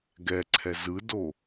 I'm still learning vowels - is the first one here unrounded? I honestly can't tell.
yes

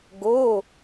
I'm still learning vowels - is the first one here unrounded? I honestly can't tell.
no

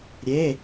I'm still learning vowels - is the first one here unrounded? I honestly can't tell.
yes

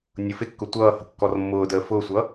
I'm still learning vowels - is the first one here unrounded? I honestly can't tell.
no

